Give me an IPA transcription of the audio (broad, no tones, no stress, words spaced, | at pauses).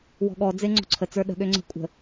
wɔ̤ɠɔ d͡zeŋ͡ǀɔ̤ǀʰə t͡sə˞ɗə̤ ɠøŋ͡ǀə̤ kʷʼə̤